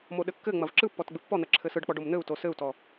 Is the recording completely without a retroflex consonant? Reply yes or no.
no